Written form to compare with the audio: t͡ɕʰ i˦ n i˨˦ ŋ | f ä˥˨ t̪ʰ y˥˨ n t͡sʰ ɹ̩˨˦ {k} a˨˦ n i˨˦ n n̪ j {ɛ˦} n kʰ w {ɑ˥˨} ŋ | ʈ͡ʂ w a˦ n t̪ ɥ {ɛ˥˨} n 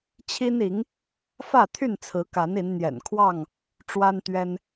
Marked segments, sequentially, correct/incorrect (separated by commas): correct, incorrect, correct, incorrect